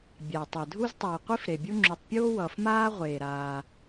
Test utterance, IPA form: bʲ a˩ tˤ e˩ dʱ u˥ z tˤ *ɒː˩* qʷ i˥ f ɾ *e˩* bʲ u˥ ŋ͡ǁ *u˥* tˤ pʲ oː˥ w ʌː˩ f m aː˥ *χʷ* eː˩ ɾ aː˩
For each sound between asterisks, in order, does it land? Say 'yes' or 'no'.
no, yes, no, no

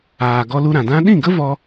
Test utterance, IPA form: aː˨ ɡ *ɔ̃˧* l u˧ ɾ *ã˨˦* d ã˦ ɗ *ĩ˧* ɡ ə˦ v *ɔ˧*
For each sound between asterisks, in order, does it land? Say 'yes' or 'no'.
no, no, no, yes

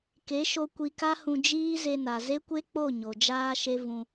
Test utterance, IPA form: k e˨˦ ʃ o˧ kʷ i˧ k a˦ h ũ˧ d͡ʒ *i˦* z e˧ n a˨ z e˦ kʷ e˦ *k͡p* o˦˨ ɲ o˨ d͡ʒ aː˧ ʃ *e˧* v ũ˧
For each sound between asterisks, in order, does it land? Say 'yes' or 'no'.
no, yes, yes

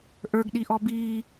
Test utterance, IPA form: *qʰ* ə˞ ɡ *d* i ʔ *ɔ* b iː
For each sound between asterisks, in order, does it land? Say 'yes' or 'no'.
no, no, yes

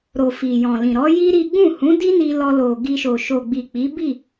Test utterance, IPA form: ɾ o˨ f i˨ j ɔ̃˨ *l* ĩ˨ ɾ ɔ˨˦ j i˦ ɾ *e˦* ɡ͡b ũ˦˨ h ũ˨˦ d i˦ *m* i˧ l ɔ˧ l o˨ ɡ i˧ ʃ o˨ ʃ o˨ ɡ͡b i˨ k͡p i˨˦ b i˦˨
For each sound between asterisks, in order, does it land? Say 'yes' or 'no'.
yes, no, no

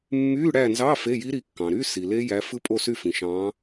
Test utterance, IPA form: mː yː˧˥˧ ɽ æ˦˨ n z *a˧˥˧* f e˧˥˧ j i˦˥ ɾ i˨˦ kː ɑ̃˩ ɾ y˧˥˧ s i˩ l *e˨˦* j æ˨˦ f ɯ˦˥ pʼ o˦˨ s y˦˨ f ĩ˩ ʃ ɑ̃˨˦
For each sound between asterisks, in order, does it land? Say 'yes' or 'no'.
no, no

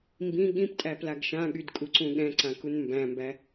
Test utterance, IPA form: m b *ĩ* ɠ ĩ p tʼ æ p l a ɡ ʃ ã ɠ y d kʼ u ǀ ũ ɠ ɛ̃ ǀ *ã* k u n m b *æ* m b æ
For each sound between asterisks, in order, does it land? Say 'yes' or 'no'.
yes, yes, no

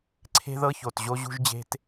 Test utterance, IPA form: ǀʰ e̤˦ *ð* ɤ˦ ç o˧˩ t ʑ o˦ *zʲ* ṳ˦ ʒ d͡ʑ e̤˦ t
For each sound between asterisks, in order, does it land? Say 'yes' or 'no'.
yes, no

